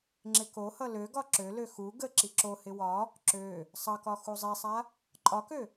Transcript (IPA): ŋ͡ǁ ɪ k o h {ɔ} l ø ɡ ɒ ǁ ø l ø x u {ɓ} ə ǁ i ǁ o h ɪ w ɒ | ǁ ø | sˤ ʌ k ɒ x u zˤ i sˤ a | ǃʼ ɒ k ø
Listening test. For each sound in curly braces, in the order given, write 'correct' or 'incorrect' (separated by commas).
incorrect, incorrect